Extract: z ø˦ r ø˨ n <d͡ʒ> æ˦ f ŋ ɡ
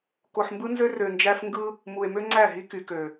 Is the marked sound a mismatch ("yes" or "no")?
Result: no